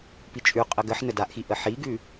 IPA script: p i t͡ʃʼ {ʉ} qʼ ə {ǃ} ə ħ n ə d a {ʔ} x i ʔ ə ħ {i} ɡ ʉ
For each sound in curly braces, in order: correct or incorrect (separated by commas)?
correct, incorrect, correct, correct